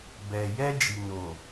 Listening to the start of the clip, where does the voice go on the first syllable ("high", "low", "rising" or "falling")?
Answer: low